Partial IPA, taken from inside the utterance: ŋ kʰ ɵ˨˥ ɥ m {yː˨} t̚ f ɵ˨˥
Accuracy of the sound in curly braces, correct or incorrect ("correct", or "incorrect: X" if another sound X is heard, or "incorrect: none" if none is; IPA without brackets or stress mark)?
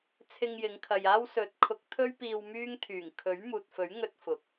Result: incorrect: uː˨